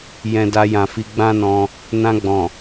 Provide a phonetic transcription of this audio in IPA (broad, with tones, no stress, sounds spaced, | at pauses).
j ɛ̃˧ d a˧ j ã˨ f i˧ ɡ͡b ã˦ n ɔ̃˧ | n ã˧ ɡ͡b ɔ̃˨